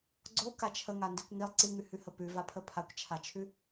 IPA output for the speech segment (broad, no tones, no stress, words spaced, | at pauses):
ɡ͡ǀo kat͡ʃʰəŋa ndikʷŋilˠ ǀiŋʉhʉhə pʉvapʰə pʰakʷt͡ʃʰat͡ʃʰʉ